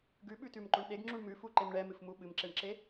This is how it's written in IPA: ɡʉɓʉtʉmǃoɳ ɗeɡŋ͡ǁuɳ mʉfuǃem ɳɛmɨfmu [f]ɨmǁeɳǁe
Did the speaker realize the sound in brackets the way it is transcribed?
no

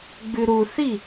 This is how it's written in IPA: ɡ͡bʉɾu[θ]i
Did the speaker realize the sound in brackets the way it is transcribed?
yes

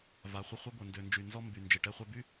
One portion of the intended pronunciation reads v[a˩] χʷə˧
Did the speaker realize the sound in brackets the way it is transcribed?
yes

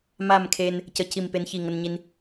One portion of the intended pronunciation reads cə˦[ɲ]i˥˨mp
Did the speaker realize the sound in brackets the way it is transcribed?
no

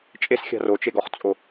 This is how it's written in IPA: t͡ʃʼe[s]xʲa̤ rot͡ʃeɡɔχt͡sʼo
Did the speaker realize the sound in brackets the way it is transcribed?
yes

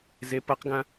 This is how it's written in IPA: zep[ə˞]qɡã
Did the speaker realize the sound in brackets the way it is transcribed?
no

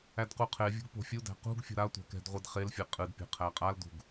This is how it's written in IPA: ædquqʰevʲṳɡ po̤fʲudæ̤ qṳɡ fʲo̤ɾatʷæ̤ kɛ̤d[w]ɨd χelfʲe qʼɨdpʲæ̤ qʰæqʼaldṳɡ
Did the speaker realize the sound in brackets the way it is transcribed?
no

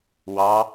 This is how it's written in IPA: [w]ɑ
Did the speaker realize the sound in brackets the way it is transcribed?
yes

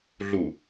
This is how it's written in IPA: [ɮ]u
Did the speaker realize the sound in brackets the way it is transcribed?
yes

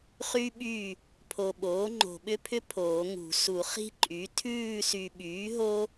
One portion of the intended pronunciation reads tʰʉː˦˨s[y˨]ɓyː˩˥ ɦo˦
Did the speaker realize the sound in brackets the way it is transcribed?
yes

